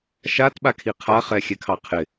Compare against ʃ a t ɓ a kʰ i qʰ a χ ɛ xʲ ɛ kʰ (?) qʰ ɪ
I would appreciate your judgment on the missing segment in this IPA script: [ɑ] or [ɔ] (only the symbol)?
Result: ɑ